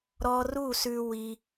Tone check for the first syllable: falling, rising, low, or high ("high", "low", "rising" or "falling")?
high